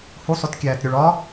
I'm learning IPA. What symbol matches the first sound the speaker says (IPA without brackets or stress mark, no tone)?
h